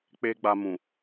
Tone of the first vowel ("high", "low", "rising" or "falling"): high